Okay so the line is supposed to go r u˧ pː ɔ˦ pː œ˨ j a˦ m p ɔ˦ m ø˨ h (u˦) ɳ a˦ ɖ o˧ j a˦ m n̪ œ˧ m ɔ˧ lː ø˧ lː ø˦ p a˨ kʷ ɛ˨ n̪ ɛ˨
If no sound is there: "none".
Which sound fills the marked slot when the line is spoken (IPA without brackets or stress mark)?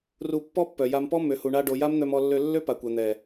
u˨